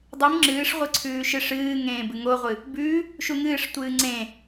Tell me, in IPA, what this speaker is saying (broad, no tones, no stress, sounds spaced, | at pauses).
dˤ ɨ m ŋ͡ǁ ɨː ʂ ʁʷ ɨ ǀʰ ʉː ʃ ɨ ʂ ɨː ŋ ẽː b ɨ ŋ o ʁʷ ɨ | b ʉː | ʃ u ŋ ɨː ʂ tʷ ɨː ŋ͡ǀ ẽ